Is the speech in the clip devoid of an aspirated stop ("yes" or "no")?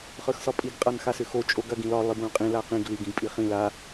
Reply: yes